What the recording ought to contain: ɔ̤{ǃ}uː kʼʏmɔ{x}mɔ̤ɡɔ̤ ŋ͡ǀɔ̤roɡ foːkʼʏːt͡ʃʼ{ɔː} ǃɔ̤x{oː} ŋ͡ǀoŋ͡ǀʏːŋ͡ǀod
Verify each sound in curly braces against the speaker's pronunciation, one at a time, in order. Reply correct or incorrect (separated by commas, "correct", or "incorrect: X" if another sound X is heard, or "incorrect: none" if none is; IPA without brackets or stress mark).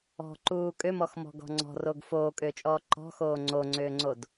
correct, correct, correct, correct